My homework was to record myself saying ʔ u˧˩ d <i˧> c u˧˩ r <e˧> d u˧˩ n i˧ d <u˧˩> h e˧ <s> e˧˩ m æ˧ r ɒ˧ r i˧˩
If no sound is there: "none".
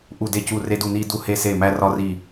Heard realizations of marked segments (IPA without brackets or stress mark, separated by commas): e˧, e˧, u˧, s